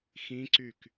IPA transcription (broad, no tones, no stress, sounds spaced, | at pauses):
x ĩ ǀ y k